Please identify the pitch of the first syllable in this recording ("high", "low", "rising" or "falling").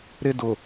high